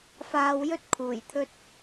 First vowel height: low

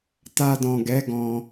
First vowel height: low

